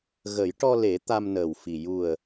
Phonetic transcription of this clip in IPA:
ɣ ə˨˩˦ j ʈ ɔ˧ l e˨˩˦ t̪ a˧ m n əː˨˩ w f i˨˩ j u˨˩ ə̯

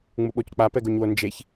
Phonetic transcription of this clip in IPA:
ŋ͡m u ɓ o c k͡p a p ɛ ɡ o ɲ w o n d͡ʒ e ç

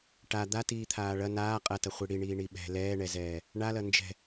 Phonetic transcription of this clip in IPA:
ʈ a d̪ a t iː t̪ʰ aː ɭ ɐ n aː qʼ ɐ t ɐ χʷ i ɽ i ɳ iː ɳ i ɓ ɛ̤ l ɛː ɳ ɛ z ɛː | ɳ a l ɐ n d͡ʒ ɛ̤

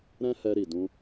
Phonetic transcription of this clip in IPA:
ɾ ɛ̃˦ h ɛ˧ ɾ i˨ d ũ˧

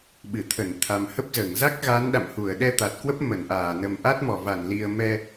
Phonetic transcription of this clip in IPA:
ɓ ɨ˧˩ t̪ʰ ə˧˩ n t̪ʰ a˨˩ m h ə˦˥ p̚ z əː˧˩ ŋ z a˦˥ k̚ ɣ a˨˦ n ɗ a̰˧˨ m h u˧˩ ə̯ ɗ ɛ˧ t̪ a˨˩ t̚ k w ə˦˥ p̚ m ə˧˩ n ʔ aː˧˩ n ə˨˩ m ʔ a˦˥ t̚ m ɔ˧˩ v a˧˩ n l i˨˩ ə̯ m ɛ˧

